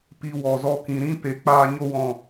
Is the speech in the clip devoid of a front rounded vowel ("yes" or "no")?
yes